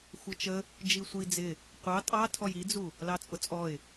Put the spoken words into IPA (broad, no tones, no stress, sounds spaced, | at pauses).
xʷ ʌ t͡ʃ ə | d͡ʒ i sʷ i d͡z ɪ | qʷ ɑ tʼ ɑ tʰ ɔ j i d͡z u | l ɑ t͡sʼ ʊ t͡sʼ ɔ ɪ̯